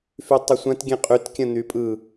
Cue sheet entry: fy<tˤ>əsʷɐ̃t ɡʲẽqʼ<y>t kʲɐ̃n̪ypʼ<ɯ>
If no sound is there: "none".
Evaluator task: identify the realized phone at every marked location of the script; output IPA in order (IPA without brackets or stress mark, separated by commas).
tˤ, y, ɯ